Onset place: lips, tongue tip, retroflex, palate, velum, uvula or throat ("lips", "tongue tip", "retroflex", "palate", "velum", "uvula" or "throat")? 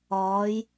palate